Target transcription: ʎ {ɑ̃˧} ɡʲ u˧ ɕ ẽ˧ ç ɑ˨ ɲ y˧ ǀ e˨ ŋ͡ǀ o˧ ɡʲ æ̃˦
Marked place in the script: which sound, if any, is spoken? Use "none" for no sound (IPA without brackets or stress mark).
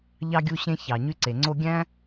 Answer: ɑ˧